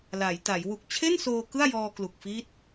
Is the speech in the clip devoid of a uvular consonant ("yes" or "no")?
yes